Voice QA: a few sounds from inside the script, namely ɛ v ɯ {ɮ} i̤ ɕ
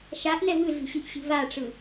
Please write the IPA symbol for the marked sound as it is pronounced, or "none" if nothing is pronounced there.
ɮ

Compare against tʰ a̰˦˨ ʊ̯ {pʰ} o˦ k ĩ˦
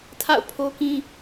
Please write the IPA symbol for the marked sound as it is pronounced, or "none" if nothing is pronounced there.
pʰ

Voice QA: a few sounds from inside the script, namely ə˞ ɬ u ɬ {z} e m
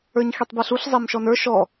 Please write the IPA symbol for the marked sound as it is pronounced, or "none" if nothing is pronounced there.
zˤ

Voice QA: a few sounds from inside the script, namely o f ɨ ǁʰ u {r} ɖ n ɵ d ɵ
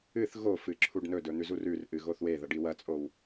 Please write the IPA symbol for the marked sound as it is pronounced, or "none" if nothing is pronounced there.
none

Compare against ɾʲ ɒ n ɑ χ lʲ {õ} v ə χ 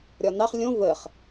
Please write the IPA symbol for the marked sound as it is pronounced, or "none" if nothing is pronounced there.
õ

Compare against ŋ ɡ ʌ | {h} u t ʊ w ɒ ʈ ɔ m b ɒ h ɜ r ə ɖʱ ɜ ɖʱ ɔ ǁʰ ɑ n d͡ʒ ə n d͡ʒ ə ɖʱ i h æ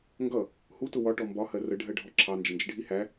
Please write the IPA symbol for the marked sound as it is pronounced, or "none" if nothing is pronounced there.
h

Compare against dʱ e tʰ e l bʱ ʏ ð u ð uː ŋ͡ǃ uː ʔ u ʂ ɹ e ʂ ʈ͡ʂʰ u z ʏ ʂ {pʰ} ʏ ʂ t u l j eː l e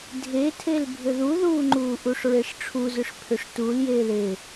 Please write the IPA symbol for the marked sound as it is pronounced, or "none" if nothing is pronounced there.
pʰ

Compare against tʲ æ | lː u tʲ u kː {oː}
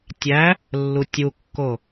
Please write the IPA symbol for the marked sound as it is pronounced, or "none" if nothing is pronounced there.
o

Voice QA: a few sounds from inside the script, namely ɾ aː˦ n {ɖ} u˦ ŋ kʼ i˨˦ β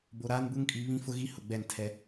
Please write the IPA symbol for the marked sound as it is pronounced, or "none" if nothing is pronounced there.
b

